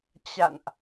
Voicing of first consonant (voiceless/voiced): voiceless